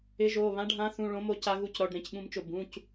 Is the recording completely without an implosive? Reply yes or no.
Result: no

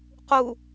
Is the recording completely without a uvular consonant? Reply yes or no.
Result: no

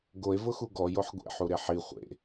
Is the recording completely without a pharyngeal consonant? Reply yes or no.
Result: no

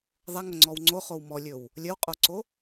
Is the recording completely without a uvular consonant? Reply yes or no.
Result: no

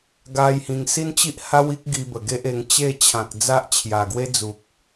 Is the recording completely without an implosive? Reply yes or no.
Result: yes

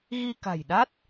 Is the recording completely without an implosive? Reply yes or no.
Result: no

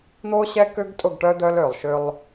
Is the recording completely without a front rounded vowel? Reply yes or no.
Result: no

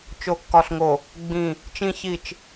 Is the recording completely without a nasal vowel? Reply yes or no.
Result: no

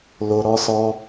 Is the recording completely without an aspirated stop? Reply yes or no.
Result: yes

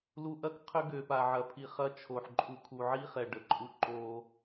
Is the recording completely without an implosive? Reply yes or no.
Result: yes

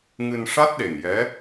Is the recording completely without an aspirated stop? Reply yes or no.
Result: yes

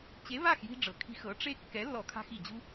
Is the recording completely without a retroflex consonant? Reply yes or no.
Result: no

